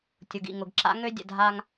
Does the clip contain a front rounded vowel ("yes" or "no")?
yes